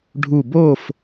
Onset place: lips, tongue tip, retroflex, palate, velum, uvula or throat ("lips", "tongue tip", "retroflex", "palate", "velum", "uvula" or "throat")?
retroflex